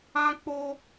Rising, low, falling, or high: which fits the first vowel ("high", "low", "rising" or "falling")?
high